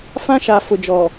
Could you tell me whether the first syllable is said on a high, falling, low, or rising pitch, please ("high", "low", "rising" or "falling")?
high